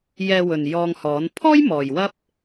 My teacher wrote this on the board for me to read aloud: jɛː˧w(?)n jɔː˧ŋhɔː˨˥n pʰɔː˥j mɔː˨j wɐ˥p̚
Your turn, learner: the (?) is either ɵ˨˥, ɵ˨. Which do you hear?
ɵ˨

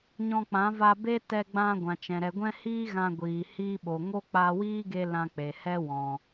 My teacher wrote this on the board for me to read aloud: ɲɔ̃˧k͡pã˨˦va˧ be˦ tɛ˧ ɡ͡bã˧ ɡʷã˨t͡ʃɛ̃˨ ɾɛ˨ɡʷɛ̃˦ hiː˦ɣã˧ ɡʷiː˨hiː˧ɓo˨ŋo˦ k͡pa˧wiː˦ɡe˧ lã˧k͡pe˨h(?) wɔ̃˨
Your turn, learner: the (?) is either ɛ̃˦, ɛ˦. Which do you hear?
ɛ˦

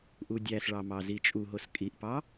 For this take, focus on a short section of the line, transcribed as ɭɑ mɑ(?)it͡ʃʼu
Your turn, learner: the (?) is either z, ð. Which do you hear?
z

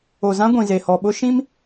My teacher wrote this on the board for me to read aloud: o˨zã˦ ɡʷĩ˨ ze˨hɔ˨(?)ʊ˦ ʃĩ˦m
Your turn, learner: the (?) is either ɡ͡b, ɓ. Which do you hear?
ɓ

